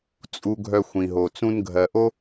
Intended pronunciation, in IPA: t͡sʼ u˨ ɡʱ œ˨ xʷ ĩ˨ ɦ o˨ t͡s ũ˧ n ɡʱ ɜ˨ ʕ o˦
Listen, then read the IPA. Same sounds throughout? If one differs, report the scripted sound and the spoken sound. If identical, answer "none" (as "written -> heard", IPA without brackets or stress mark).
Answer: ʕ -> ʔ